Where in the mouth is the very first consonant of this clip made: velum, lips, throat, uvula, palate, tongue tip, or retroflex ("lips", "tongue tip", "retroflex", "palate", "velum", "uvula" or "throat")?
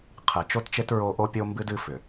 uvula